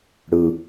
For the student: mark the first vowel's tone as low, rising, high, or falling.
low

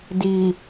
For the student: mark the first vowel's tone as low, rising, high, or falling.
low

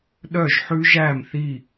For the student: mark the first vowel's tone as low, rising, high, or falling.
falling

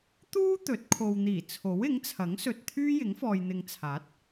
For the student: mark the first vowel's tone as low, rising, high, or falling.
high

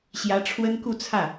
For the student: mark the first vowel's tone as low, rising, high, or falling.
rising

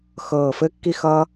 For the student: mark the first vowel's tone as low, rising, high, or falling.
low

